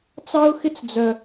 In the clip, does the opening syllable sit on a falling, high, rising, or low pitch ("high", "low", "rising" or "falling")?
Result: high